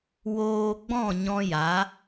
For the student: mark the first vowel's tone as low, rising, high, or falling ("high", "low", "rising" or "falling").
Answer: low